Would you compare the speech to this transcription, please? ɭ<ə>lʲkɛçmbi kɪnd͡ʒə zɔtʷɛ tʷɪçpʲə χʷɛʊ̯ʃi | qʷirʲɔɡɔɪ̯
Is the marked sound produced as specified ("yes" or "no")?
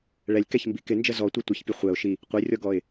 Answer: no